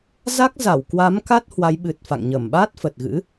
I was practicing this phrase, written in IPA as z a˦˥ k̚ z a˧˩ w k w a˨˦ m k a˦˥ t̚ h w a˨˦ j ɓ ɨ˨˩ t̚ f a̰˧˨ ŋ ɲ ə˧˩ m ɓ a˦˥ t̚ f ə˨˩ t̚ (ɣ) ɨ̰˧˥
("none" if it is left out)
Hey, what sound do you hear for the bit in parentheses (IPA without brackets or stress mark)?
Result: ɣ